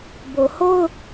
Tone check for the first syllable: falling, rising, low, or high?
low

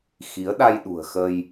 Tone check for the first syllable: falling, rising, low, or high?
rising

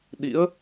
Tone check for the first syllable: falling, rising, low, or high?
rising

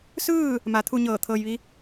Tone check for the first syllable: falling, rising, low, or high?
falling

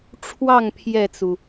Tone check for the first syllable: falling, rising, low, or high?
falling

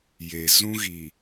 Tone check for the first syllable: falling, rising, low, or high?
low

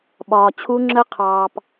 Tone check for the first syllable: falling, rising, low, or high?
low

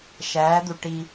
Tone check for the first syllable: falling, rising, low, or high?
rising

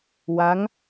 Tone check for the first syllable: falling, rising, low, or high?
rising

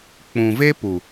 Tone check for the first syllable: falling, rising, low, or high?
low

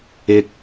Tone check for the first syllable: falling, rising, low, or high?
low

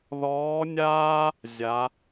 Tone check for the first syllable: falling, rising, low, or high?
rising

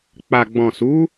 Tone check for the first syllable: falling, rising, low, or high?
low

